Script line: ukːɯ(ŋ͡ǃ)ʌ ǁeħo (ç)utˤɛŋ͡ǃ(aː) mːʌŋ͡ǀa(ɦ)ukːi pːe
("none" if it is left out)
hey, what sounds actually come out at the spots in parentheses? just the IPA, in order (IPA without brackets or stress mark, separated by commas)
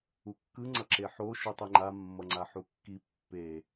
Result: ŋ͡ǀ, ʃ, a, ħ